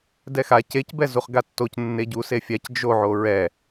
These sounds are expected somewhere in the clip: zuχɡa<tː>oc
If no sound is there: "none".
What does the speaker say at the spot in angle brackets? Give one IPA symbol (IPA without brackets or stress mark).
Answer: tː